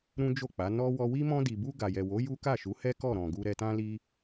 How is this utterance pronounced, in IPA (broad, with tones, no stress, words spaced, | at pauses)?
ɾũ˦d͡ʒo˦˨k͡pa˨˦ nɔ˦ wɔ˧wi˦ mɔ̃˧di˨bu˧ ɡa˨jɛ˨wo˨˦ ju˦ka˦˨ʃu˨˦hɛ˦ kɔ˦˨ɾɔ̃˨ɡu˧ ɾɛ˦ tã˦li˦